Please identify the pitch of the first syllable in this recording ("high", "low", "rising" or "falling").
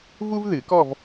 high